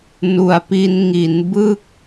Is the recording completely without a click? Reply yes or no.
yes